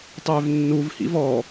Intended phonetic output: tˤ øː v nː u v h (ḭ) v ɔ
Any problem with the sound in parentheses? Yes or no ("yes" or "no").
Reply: no